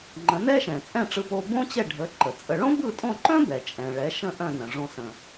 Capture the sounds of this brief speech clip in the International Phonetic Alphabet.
ŋ͡ǃə̃˩˥nɛ˥ʃɛ̃˩ t͡sʼɛ̃˥˩ʈ͡ʂɯ˧po˧ bõ˥t͡ɕɛ˥˩ ɖʱə˩˥ ǃə˩t͡sʼə˧ ɭõ˥bɯ˥˩tʼõ˥˩ǃœ̃˥ bɛ˩t͡ʃʼɛ̃˩ ɭɛ˩˥ʃə̃˥˩ ʔœ̃˥˩nə̃˩ʐõ˧ sə̃˩

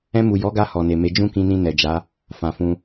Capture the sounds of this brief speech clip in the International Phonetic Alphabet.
ɛ̃˧mu˨ jɔ˨˦ɡa˧ hɔ˨ne˨me˨˦ d͡ʒũ˦kĩ˧nĩ˧ nɛ˨d͡ʒa˨˦ | fã˨fũ˧

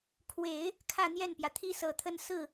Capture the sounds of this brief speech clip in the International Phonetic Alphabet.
kʰwe˨˩˦ɪ̯ | kʰä˥˧n̪jɛ˥˩npjä˩t̪ʰi˥ sɤ˨˩t̪ʰə˥˧n sɹ̩˥˩

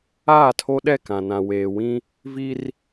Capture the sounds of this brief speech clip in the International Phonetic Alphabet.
aː˦˨tʰo˦ ɗɛ˦˨kã˨nã˨ weː˨wĩ˦ | vi˦r

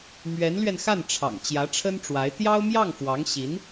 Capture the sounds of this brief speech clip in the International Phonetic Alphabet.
mɥɛ˧˥nlɥɛ˧nxa˥˩nʈ͡ʂʰɑ̰˨˩ŋ t͡ɕjä˧˥ʈ͡ʂʰə˥nʈ͡ʂwa˧˥ɪ̯ t̪jɑ˥ʊ̯mjɑ˥˩ŋfwɑ˧˥ŋɕi˧˥n

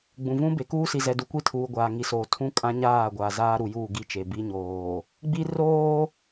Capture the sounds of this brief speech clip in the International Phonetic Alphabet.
ɡ͡bũ˨vũ˦be˨ kuː˦si˨ zɛ˨du˨kʷi˦˨tʰuː˨ ɡʷaː˨ŋi˨soː˨ tʰũ˦kʼã˦ ɲaː˦˨ɡʷa˨ zaː˦ɾu˨juː˦˨ ɡi˦˨t͡ʃe˨ bi˦ɲoː˨ | ɡ͡bi˦roː˦

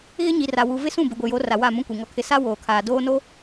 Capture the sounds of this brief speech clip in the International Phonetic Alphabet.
ɣɪ˦ɲi˨ra˨wu˨ vɪ˦sũ˦˨ bɪ˨ɡʷɪ˨ jo˨˦ra˨ wa˦˨mũ˦kʷi˨ ŋɔ˦kʰɪ˦ sa˦ woː˨kʰaː˨ doː˦no˦

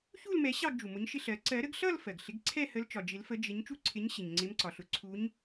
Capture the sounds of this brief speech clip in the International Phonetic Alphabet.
çu˥˧lmɛ˨˩˦ ɕɑ˥˧ɡd͡ʒu˩ mʊ˨˥ɲʃɪ˥˧ɬɜ˨˩˦ ǀɜ˨˩˦ɾə˨˩˦ɡ ɬʌ˥˧l fɜ˩ɡ ɬɪ˨˩˦ɡǀʰɛ˥˧hə˨˥l t͡ʃɒ˩d͡ʒɪ˨˩˦lfə˨˥ d͡ʒɪ˨˥ɲ t͡ʃu˥˧ǀʰɪ˨˥ɲɕɪ˩ɲ ŋ͡ǀɪ˨˥mǀɒ˩ɬʊ˨˥ ǀʰu˨˥ɲ

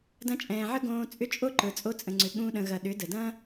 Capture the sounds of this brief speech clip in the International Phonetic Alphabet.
dɐ̃˧t͡ʃʼɛ̃ː˨ʕə˦ ɡõː˧ t͡sʼʏ˧ t͡ʃʼo˦ǃə˞˨ t͡sʼo˧t͡sʼə̃˨ŋ͡ǀʏ˨ ɠũ˧ɗə̃˨ɣɐ˨ ɗʏ˨˦də˨ dɐ̃˦

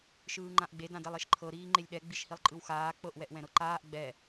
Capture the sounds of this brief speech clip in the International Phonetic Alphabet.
ʃɯːŋ͡ǃãʔɡ͡be dãdɛlˠeʃǃʰɤ ɾiːŋ͡ǃelʲɗɛ ɡ͡biʃhilˠǃʼɯwxaː k͡pɤʔ wɛʔwɛ̃ɾɤǃaːʔ ɡ͡bɛ

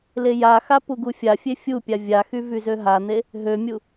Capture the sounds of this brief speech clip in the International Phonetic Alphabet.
lejaxa puɡufʲafʲe fʲupʲa vʲaxy vyzøɦan̪e | ɦømʲu

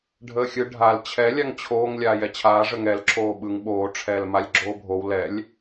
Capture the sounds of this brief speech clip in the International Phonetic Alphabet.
ɖʱəːxʲɯ ɖʱal t͡ɕʰɛ lʲaŋt͡ɕʰoːŋ lʲaːjɛt͡ɕʰaː ʐəŋɛl ǁʰoːɓɯŋ ɓoː ʈ͡ʂʰɛːlmalʲɡ͡ǁoːbʱow lɛlʲ

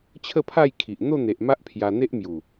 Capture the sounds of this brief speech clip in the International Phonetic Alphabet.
t͡ɕʰə˥˧pʰa˥˧jkʰi˨ʔ n̪o˥˧n̪e˨ʔ ma˦ʔpʰja˧ n̪e˦ʔmju˨˩

